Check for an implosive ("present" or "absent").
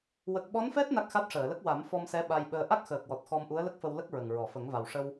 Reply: present